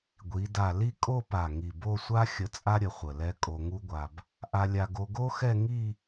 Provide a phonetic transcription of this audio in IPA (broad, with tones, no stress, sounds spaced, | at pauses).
ɡʷ i˩˧ d a˧˩ l i˥˧ kʼ o˥˧ p a˧˩ ŋ i˧˩ b o˥˧ sʷ a˥ xʲ ə˧ t͡sʼ a˥ ɾʲ ə˧ χʷ ə˧˩ l ɛ˥ kʼ o˧ ŋ u˥ ɡʷ a˧ b | ʔ a˧ lʲ a˧ ɡ o˧ ɡ o˥ x ɛ˥˧ ŋ i˥˧